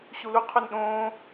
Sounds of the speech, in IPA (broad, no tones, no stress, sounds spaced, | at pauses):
ɕ u l u qʰ u n ɗ õː